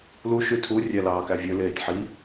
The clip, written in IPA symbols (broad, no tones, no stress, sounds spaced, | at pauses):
l u ʃ y tʰ u rʲ æ l ɑː k æ vʲ ø l eː tʲ ħ i